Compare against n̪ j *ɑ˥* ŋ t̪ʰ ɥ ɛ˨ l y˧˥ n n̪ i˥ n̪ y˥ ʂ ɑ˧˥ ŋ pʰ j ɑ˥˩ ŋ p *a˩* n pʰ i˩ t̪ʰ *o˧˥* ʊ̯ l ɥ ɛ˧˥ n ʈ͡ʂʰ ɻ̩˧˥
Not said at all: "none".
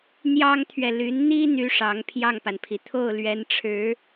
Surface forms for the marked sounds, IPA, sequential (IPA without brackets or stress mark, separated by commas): ɑ˥, a˩, o˥˩